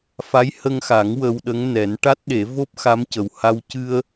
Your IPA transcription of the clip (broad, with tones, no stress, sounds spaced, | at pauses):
f a˧˥ j h ə˧ ŋ x a˨˩˦ ŋ w ə˧ w ɗ ə˧˥ ŋ n ɛ˨˩˦ n ʈ a˦˥ t̚ ɗ e˨˩˦ v o˦˥ p̚ x a˧˥ m c ə˨˩ w h a˧ w c ɨ˧ ə̯